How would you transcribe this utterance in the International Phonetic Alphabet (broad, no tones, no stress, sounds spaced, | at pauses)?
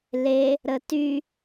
l e | ɾ ə t y